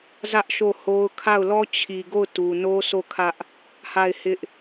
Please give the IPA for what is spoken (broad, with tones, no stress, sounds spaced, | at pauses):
z ä˦ ʔ ʃ o˦˨ h o˦ ʊ̯ kʰ a˦˨ ʊ̯ l ɔ˦ t͡ɕʰ i˨ ɡ o˦˨ ʊ̯ t u˨ n o˦ s o˦˨ kʰ ä˦ ʔ | h a˦˨ ɪ̯ h ɪ˦ ʔ